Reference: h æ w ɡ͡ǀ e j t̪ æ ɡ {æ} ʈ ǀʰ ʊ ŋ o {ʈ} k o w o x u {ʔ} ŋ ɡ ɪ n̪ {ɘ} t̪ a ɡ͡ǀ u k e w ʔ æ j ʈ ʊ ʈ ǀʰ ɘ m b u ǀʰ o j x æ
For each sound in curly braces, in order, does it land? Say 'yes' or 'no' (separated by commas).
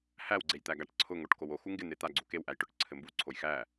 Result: no, yes, no, no